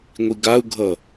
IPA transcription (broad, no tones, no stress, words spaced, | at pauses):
ŋʷiɡau̯ɡʱʌ